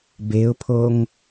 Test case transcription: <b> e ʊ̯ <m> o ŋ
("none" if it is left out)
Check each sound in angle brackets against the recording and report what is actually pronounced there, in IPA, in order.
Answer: b, pʰ

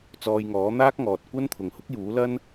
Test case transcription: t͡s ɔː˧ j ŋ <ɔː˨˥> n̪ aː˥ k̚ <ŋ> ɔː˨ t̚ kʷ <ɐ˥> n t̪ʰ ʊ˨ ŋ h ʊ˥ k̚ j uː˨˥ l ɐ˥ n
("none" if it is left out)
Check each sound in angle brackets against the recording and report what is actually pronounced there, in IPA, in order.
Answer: ɔː˨˥, ŋ, ɐ˥

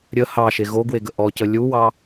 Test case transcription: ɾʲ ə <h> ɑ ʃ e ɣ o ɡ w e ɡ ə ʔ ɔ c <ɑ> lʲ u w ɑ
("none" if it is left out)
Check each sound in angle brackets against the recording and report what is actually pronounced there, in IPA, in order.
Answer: h, ə

